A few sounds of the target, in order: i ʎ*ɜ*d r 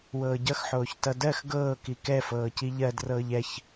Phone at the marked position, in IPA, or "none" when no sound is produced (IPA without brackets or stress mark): ɜ